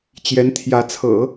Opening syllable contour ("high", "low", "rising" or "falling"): rising